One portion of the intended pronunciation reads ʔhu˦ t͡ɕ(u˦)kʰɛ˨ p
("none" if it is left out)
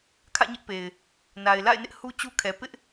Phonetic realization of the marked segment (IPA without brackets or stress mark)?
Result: u˦